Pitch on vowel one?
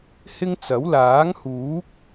high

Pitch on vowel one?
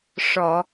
low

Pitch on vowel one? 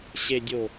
low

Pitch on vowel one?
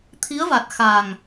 rising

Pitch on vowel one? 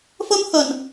high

